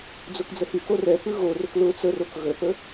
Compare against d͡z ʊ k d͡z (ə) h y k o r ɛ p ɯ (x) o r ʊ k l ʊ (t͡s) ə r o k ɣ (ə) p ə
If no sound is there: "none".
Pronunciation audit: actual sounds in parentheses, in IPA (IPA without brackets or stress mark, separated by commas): ə, ɣ, t͡s, ə